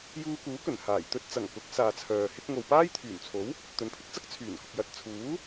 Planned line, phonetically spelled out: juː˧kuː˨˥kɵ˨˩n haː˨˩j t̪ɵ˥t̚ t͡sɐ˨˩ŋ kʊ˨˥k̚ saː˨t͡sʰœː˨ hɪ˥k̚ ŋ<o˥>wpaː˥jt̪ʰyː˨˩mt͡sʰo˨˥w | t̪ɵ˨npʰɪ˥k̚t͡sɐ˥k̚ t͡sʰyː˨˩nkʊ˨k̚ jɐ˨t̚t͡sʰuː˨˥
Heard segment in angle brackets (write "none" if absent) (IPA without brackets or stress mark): o˨